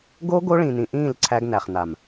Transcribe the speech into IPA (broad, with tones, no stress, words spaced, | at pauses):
ɡo˦ ɡo˦ɭĩ˨nĩ˨ʔĩː˦˨l ǀʰæ˦ɡnæ˨χna˨m